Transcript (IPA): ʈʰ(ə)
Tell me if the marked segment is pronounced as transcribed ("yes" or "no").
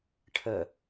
yes